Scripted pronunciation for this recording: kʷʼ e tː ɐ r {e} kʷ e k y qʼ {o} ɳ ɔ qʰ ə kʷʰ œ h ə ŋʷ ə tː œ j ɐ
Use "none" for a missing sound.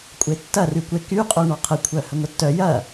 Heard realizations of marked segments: y, o

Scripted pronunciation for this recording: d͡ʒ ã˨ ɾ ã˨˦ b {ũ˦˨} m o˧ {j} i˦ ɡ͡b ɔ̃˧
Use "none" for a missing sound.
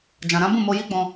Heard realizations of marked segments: ũ˦˨, j

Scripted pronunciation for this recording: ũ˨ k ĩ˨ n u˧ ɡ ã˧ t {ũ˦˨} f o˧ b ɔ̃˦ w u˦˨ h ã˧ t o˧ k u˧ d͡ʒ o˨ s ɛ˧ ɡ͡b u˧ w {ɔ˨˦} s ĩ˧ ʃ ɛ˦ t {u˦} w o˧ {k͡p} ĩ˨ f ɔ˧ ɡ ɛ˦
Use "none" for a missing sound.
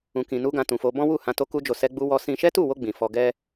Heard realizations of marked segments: ũ˨, ɔ˧, u˦˨, ɡ͡b

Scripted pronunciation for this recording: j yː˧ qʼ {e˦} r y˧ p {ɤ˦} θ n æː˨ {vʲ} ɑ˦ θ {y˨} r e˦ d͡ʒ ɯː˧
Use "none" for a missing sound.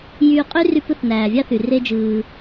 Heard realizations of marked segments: y˦, ɯ˦, vʲ, y˨

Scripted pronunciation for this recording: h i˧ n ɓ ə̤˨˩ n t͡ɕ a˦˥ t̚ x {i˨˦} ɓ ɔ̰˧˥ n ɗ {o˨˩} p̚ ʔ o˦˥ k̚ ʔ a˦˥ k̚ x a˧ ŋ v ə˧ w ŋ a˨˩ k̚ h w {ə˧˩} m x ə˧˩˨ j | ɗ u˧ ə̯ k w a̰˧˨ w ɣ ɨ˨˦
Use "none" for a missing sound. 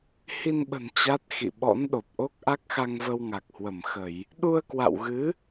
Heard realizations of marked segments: ḭ˧˨, o˨˩, ə˧˩

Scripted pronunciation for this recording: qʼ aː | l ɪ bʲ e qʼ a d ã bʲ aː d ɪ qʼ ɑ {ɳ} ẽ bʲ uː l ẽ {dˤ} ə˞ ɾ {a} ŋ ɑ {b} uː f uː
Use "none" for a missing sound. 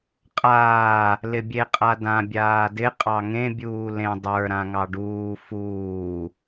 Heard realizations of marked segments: ŋ, dˤ, ã, ɖ

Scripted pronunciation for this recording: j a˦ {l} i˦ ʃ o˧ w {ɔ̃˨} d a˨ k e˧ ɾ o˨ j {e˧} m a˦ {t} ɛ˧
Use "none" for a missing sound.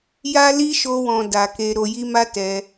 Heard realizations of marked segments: l, ɔ̃˨, i˧, t

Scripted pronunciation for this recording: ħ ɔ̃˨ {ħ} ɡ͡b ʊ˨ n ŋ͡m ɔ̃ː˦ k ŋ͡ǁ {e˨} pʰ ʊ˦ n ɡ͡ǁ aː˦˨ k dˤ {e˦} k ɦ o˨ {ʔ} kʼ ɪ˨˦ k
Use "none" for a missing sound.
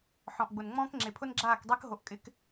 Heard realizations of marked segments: ʔ, e˨, e˦, ʔ

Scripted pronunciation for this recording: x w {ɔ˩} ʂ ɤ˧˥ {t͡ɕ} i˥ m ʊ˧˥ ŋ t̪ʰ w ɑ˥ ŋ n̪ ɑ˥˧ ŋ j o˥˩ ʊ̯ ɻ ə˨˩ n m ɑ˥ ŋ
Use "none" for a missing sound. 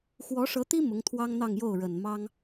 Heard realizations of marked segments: ɔ˧˥, t̪

